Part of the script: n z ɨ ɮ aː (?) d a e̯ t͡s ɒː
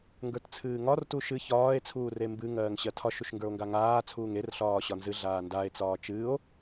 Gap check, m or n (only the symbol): n